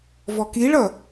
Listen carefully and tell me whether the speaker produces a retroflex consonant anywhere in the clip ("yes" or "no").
yes